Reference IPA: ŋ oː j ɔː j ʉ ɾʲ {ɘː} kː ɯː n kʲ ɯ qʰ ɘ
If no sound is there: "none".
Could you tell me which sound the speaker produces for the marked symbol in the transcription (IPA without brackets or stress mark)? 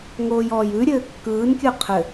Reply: ɘː